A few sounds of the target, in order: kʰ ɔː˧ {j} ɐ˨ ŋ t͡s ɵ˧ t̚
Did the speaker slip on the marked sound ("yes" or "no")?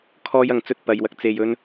no